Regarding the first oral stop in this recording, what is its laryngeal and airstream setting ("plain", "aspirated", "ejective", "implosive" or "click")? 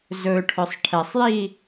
aspirated